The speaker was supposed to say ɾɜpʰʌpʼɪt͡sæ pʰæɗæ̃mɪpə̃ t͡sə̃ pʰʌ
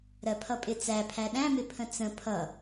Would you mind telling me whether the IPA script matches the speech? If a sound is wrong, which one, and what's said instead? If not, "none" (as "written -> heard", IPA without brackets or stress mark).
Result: p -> pʰ